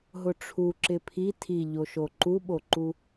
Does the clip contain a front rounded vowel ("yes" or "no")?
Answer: no